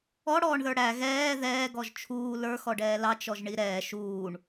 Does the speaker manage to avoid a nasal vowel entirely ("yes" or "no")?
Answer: yes